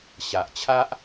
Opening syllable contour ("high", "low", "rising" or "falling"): low